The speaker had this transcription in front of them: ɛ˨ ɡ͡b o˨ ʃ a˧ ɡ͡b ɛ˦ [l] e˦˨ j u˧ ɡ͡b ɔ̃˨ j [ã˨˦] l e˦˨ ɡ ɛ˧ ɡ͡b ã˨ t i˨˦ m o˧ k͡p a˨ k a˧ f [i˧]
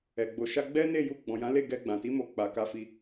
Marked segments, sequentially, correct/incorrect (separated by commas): incorrect, correct, correct